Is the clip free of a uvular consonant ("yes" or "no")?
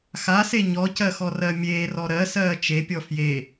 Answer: yes